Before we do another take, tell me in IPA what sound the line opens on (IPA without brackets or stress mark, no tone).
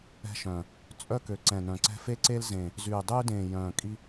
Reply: ɛ̤